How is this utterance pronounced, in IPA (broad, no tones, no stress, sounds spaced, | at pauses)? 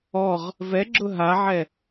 ɔ ʁ | v ɛ ɡ͡ǁ ʊ ɦ a ʕ ɛ